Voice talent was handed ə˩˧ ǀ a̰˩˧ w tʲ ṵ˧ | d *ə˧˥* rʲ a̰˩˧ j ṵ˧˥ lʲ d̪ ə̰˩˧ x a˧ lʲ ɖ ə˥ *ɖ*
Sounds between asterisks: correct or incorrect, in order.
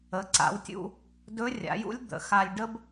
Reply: incorrect, incorrect

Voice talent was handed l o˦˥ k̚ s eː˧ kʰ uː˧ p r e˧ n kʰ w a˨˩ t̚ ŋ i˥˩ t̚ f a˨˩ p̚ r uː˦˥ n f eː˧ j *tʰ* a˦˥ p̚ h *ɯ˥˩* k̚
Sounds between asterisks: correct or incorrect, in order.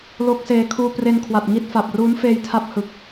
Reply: correct, incorrect

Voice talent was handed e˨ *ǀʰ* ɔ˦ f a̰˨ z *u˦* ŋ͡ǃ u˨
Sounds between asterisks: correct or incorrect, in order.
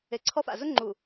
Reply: correct, incorrect

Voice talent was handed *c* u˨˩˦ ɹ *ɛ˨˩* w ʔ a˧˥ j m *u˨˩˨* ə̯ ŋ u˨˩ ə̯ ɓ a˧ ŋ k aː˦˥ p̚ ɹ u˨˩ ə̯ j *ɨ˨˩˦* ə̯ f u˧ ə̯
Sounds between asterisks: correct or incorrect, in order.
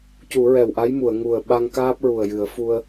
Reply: correct, correct, correct, correct

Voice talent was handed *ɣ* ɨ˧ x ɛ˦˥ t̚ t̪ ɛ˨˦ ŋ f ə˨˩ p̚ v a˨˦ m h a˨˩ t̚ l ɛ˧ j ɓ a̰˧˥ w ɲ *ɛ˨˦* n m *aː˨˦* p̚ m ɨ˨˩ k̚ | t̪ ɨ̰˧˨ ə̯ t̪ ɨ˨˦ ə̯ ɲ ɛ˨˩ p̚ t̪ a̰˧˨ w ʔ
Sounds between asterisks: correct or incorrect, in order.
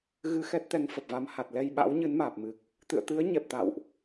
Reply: correct, incorrect, incorrect

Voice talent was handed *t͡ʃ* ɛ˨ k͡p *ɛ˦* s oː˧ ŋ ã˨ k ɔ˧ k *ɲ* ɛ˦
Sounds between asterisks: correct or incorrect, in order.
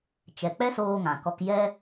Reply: correct, correct, incorrect

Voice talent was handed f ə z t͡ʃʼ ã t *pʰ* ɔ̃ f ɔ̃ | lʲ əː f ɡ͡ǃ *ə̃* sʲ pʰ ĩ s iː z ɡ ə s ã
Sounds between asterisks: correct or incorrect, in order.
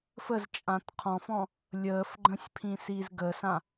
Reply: incorrect, correct

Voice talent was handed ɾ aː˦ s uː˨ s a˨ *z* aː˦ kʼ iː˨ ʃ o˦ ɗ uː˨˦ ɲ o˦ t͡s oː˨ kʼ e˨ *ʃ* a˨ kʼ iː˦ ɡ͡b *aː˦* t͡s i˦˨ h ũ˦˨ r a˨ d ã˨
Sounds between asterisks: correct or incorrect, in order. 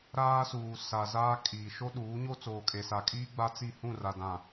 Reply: correct, incorrect, incorrect

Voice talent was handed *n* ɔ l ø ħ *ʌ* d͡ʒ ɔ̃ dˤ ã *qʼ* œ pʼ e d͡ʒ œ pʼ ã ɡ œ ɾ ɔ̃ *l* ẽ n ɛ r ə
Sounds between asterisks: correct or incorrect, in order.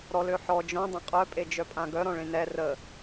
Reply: incorrect, incorrect, correct, incorrect

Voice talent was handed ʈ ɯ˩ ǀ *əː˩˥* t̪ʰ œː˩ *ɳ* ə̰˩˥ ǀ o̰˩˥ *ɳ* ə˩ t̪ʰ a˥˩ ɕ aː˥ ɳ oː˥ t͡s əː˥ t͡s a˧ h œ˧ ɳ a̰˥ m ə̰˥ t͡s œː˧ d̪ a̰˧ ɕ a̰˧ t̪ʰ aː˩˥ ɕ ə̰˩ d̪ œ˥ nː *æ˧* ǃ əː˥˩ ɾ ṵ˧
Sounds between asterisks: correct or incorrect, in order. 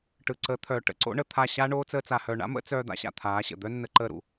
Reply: correct, incorrect, correct, incorrect

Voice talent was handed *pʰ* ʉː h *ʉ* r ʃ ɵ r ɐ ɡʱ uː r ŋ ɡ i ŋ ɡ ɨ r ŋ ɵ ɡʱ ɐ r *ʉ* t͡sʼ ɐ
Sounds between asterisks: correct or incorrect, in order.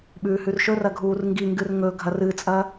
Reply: incorrect, correct, incorrect

